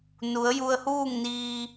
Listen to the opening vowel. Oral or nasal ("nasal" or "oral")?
oral